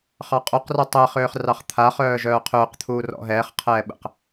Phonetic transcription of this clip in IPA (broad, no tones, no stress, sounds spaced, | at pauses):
χ ɑ qʼ o q r ɔ tˤ ɛ χ øː χ r ɑ χ t̪ʰ a χ œː ʒ œː qʰ ʏː q t̪ʰ uː r ɔ̰ ɦ ɛː χ qʰ ɛː ɓ ə̰ q